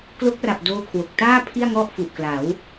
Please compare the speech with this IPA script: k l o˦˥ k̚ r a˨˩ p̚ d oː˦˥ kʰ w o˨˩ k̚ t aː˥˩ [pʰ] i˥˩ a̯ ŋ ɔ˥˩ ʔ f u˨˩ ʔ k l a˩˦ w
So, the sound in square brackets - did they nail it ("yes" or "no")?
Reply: yes